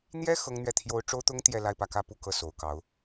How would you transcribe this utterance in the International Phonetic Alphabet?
n̪jɛ˥ xɤ˥ŋ n̪ɥɛ˥˩t̪ʰjo˥ʊ̯ ʈ͡ʂo˥ʊ̯t̪ʊ˥ŋ t̪jɛ˥˧ la˥˧ɪ̯pä˥˩kä˥ pu˥kɤ˥˩ so˨˩ʊ̯kɑ˧˥ʊ̯

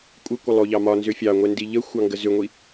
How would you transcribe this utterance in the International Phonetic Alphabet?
kʷʼəkʷə lˠoʎɑmɒ nzʏfʲɑ ŋʷɛndiʎə xʷɑŋɡəzʏŋʷi

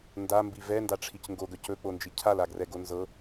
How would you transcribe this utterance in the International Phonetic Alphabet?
ndambi vɛndaʈ͡ʂʰic ŋɡoɡœc ɵk͡pond͡ʒi cʰalaɡrɛɡo nzɤ

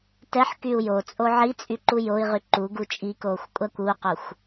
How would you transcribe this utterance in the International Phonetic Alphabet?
tɛħ kyu̯jot͡sʼo ʕit͡sʼy ǃujoi̯ʁy ǃuɡu t͡ʃʼikoːxʷ kʷʼakʷuqoxʷ

